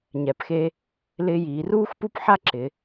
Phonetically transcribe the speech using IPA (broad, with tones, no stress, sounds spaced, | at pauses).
ɲ ɛ˩˧ p x e˧ | l ɪː˧ j iː˩˧ r uː˥ x p u˥ p ħ a˥ ǁ ɪ˩˧